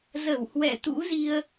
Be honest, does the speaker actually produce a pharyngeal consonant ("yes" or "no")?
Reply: no